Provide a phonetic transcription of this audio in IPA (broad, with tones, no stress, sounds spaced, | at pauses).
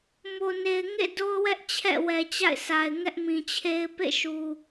m o˨ n e˨ ɪ̯ ŋ ḛ˦˨ d o˦ ʊ̯ w ɛ˦ ʔ t͡ɕʰ ɛ̰˦˨ w ɛ˨ t͡ɕ a̰˦˨ ɪ̯ s a˨ ɪ̯ ŋ ɛ˦ ʔ m ĩ˨ t͡ɕʰ e˦ ɪ̯ p ḛ˦˨ ʃ u˨